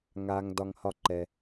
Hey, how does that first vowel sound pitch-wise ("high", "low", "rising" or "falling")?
low